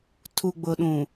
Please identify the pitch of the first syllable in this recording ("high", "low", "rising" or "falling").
low